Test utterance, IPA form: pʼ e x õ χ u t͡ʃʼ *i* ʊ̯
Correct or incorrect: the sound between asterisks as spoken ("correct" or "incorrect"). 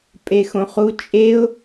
incorrect